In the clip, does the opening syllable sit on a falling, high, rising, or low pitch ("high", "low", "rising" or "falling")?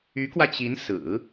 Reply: rising